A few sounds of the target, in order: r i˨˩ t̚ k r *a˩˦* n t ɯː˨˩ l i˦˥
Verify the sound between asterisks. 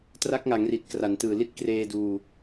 correct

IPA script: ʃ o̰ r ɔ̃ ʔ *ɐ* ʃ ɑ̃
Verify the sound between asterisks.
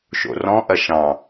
correct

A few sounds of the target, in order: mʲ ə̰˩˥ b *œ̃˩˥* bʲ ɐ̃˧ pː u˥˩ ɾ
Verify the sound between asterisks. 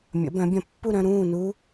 correct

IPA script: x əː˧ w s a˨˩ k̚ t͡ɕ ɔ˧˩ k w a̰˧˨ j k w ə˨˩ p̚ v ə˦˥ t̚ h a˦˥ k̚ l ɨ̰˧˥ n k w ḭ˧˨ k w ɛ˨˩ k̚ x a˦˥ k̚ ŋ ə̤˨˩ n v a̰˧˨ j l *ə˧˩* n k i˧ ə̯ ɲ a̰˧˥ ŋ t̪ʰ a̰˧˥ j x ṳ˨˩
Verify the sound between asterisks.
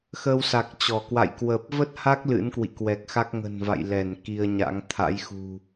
incorrect: ɛ˧˩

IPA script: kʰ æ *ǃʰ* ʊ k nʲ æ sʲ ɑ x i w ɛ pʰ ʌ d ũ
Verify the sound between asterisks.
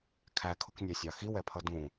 incorrect: kʰ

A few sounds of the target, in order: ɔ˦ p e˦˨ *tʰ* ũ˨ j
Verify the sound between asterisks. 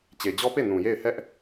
incorrect: n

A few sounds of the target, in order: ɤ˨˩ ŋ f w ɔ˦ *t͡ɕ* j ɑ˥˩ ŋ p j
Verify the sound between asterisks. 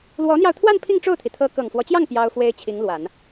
correct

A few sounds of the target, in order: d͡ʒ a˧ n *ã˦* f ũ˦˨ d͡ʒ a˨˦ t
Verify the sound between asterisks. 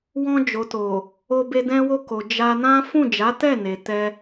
correct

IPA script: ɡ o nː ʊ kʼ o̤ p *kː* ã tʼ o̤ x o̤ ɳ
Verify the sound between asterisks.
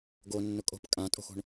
incorrect: kʼ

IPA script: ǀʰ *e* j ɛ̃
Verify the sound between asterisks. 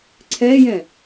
incorrect: ɛ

